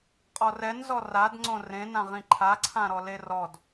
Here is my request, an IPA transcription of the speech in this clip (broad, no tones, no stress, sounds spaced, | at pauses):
qʼ ɔ r ɛ n z ɔ r a d ŋ͡ǀ õ r ẽ n ã ʁ ĩ ǃʰ a ǀʰ ã ɾ ɔ l e r ɔ d